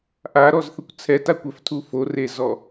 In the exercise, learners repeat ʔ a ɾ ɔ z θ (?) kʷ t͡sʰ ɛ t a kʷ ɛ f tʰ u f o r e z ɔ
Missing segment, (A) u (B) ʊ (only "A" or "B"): B